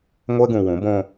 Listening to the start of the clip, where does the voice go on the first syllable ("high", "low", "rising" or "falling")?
high